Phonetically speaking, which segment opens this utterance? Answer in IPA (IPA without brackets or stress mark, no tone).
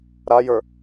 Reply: ɾ